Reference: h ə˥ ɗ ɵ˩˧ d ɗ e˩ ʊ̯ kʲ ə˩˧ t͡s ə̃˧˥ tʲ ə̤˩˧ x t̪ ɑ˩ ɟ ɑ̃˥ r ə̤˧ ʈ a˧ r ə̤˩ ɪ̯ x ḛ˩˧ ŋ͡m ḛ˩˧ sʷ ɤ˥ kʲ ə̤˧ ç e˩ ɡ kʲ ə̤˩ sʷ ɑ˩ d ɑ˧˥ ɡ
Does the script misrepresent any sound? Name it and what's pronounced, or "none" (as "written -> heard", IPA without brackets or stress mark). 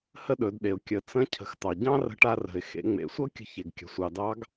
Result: tʲ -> cʰ